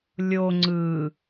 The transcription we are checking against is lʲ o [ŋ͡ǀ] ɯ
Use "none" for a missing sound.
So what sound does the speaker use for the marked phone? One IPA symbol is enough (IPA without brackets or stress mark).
ŋ͡ǀ